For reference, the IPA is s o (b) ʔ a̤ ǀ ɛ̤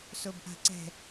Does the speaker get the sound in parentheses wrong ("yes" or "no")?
no